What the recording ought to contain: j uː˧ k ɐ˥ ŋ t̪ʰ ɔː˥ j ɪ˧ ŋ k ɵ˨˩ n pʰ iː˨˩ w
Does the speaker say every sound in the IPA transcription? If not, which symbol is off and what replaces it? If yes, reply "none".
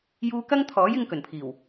ɔː˥ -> ɔː˨˥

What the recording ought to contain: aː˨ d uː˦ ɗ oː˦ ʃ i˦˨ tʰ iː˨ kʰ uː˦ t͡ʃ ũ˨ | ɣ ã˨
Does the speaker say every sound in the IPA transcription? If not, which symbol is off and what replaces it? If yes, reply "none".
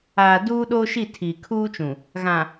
none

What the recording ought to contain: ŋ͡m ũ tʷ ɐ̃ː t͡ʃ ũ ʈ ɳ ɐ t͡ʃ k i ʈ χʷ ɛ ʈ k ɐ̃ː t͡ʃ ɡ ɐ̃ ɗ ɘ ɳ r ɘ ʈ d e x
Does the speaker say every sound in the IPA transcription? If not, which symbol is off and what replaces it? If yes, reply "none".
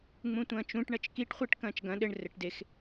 none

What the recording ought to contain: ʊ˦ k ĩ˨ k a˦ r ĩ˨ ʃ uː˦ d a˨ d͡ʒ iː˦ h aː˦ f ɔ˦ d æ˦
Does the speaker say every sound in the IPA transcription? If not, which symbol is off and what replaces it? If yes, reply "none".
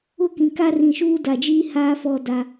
æ˦ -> a˦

